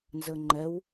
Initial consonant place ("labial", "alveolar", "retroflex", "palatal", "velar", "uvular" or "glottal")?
alveolar